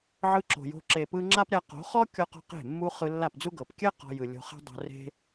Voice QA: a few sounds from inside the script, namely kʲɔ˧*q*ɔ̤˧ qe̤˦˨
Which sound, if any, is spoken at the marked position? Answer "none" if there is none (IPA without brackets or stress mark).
q